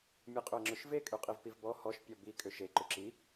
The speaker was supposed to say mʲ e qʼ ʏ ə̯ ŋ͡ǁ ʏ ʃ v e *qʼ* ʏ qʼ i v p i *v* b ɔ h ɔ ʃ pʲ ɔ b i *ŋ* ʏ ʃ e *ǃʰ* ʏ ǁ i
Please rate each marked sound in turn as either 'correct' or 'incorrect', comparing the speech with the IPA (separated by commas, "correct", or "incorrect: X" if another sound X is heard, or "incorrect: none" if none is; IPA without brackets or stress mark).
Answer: incorrect: kʼ, correct, incorrect: kʼ, incorrect: ǃ